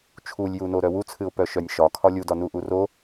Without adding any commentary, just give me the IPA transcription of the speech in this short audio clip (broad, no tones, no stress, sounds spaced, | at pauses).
t͡ʃʰ u lʲ j u n o ɾ œ w u t͡sʰ ɨ ʊ̯ p œ ʃ œ nʲ ʃ ɒ kʰ ɒ lʲ u d ɒ n u ʔ u r o